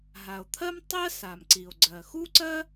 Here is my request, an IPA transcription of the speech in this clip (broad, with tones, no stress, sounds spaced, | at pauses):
ɦ a˩ o̯ t̪ʰ ɜ˥ m tˤ ɜ˥ s a˩ m ǀ i˩ o̯ ɡ͡ǀ ɜ˩ x u˥ ǀ ɜ˥